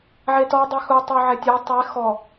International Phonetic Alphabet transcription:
ʕ e t ɔ dˤ i x u tˤ ɪ o̯ ʕ ɛ tʲ o tˤ e x ɔ

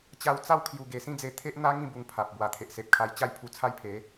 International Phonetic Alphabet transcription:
t͡ɕ a˧ w t͡s a˥˧ w kʰ j u˨˩ ɡ e˨˩ s ĩ˥˧ d͡z e˧ t̪ʰ e˦ ʔ n̪ a˦ ŋ ĩ˥˧ b u˧ ŋ pʰ a˨ p̚ b w a˨˩ t̪ʰ e˨ ʔ s e˨ p̚ kʰ a˧ j t͡ɕ a˥˧ j pʰ u˧ t͡sʰ a˦ j pʰ e˨˦

